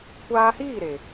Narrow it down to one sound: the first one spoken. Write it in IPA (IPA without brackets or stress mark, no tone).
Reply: kʷ